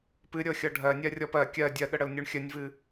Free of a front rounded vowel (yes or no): yes